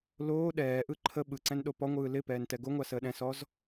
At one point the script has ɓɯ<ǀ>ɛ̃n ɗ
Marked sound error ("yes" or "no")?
no